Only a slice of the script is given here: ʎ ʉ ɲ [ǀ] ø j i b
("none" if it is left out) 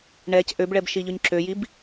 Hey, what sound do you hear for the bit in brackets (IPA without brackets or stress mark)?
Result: ǁ